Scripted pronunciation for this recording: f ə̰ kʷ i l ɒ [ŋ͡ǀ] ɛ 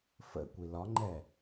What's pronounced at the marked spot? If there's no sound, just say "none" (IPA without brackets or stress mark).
ŋ͡ǃ